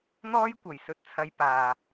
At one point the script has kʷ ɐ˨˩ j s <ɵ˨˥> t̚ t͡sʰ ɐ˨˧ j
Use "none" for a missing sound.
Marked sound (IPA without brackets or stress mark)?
ɵ˨˥